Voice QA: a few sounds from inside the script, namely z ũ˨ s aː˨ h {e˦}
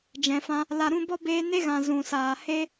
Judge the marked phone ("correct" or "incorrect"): correct